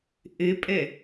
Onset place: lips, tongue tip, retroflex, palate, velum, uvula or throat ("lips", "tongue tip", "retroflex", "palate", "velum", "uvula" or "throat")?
throat